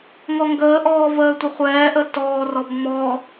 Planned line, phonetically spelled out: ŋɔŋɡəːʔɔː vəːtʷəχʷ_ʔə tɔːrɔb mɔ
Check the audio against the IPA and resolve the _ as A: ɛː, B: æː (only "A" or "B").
A